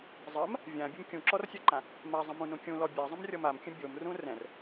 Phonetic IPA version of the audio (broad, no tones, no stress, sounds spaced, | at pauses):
zˤ ɜ m | vʲ ã bʲ ə m kʲ ũ ǁ ɔ r sʲ ɜ ǃ ã | m a zˤ ə̃ m ũ n ũ kʲ ũ l ɔ bʲ a zˤ ə̃ m rʲ ɔ m a m kʲ ə̃ bʲ o m r ũ r ɛ̃ r